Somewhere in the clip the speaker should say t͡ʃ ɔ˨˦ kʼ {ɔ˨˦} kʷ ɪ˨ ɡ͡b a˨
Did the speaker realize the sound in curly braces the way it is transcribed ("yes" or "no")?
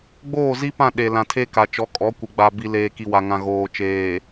yes